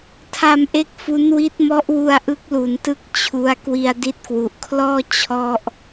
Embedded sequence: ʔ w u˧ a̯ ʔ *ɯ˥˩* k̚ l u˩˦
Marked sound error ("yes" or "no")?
yes